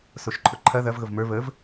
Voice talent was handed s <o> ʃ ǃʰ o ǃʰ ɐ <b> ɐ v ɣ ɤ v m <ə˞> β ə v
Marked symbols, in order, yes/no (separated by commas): yes, no, yes